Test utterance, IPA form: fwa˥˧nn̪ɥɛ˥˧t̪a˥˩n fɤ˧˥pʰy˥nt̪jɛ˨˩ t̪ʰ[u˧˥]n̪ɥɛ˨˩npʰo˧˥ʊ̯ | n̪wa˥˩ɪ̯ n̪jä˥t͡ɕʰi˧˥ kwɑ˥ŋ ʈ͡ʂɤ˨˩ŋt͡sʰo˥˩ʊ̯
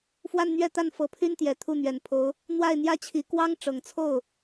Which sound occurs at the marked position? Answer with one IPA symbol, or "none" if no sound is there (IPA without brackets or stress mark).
u˥˩